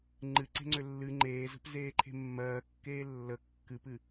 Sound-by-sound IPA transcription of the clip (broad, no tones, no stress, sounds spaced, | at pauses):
ŋ͡ǃ ɨ ǀ e̤ ŋ͡ǀ ø lː ɨ ŋ͡ǃ eː z ə̤ p z eː ǃʰ e̤ mː ɜː kː eː lː ə kː ɨ p ɨ